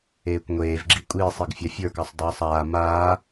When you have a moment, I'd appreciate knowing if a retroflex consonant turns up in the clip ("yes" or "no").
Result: no